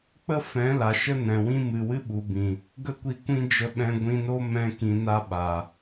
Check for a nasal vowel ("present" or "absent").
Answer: present